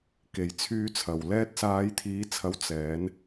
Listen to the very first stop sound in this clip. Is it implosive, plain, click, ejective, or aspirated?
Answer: plain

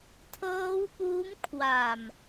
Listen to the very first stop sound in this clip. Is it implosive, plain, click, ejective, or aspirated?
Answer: aspirated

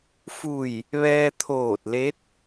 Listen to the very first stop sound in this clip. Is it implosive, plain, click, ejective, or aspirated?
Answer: aspirated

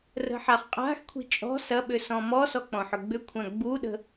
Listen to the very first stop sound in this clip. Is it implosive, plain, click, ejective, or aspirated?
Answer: ejective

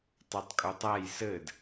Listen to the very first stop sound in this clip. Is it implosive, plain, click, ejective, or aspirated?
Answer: plain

